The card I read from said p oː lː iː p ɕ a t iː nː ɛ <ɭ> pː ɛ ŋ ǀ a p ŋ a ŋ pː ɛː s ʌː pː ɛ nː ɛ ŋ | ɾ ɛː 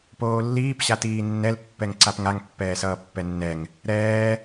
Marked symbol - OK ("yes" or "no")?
no